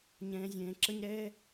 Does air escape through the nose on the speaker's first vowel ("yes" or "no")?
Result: yes